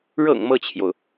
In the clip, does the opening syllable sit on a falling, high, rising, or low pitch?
low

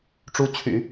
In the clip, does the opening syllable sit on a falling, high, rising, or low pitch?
rising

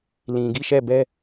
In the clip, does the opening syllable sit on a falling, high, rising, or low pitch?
low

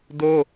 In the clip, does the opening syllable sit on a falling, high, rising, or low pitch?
high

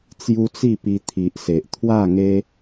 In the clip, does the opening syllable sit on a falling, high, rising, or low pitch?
high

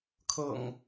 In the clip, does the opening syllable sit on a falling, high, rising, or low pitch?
low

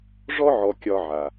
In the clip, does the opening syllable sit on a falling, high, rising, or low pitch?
high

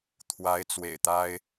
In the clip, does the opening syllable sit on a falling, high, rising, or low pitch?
rising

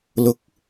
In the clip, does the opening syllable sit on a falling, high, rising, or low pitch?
rising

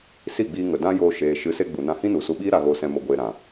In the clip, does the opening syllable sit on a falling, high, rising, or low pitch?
falling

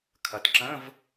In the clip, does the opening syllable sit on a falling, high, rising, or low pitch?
rising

